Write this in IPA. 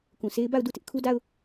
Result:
k ũ˨ s e˦ ɪ̯ b a˦˨ ʊ̯ d u˦˨ t ɪ˦ ʔ kʰ u˦ d a˦ ʊ̯

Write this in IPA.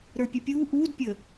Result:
ɾ ə˞ pʲ ɛ pʲ uː ʔ uː d pʲ ə

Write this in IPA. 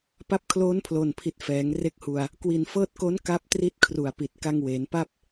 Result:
p a˦˥ p̚ kʰ l oː˦˥ n pʰ l o˨˩ n pʰ i˨˩ t̚ f ɛː˩˦ ŋ r e˦˥ k̚ h u˧ a̯ | k w i˨˩ n f ɤː˦˥ t̚ k o˦˥ n k a˥˩ p̚ t r i˦˥ t̚ kʰ r u˨˩ a̯ p i˨˩ t̚ k a˧ ŋ w eː˩˦ n p a˥˩ p̚

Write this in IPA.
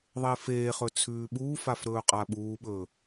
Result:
ðˤ e f eː χ ɵ t͡sʰ ʉː ɓ uː f a f ɾ ɵː qʼ a ɓ uː ɓ ɵː

